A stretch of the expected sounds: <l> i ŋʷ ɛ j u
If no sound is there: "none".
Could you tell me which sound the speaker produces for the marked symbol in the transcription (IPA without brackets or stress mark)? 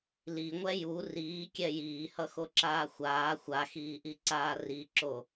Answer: l